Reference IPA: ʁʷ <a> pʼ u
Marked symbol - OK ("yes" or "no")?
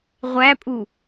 no